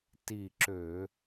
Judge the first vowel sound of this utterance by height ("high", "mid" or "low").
high